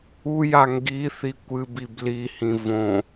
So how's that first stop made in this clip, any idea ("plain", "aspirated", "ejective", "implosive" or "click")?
plain